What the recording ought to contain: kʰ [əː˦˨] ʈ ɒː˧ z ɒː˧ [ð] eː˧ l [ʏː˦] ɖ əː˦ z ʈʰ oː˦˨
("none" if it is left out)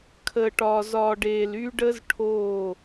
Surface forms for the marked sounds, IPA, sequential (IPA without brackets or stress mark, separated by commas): əː˧, ɖ, yː˦